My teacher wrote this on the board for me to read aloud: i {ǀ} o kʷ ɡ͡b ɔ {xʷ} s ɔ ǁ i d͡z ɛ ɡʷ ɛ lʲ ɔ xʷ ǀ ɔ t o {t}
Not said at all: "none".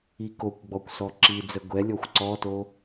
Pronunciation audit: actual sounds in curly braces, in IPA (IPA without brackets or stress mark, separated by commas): k, kʷ, none